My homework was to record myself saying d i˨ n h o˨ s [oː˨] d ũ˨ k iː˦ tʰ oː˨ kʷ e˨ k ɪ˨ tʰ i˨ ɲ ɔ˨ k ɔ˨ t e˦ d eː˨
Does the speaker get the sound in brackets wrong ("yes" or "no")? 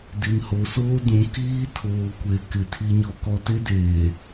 yes